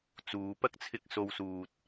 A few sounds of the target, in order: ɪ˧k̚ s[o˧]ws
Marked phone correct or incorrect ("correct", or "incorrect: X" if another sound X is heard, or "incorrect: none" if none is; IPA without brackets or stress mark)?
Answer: correct